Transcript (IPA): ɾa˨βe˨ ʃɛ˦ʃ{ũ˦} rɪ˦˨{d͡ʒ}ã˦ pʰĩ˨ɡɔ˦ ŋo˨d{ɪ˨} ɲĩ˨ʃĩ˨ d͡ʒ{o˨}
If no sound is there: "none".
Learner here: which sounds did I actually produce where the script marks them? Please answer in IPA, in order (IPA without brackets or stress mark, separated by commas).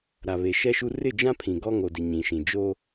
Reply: u˦, d͡ʒ, ɪ˨, o˦